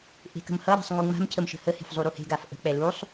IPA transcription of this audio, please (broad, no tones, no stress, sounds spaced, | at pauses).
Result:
ʔ e̤ k ə̤ m h ʌ ɾ a̤ sˤ ŋ u ŋ͡m a̤ m cʰ ə m ʃ ə̤ h ə h e̤ f zˤ u ɾ u h e̤ ɡ a f ʔ ə̤ k͡p ɛ l u sˤ